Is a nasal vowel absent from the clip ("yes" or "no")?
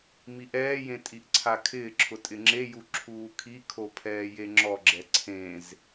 no